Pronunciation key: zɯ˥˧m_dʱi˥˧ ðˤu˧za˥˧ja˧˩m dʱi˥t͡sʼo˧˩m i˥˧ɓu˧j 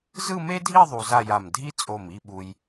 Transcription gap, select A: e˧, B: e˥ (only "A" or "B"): B